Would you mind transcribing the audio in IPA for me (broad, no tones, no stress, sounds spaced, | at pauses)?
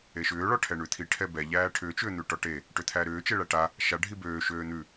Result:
e ʃ ʏː ɭ ɔ ʈʰ ɛ ɳ ʉ t̪ʰ i ʈʰ ɛ b ɛ ʎ æː ʈʰ ʏː t͡ʃ ʏː n̪ ʉ ʈ ɔ ʈ e | ʈ ʏ t̪ʰ æː ɾ ʏː t͡ʃ e ɭ æ ʈ a | ʃ a ɖʱ i b øː ʃ øː n̪ ʉ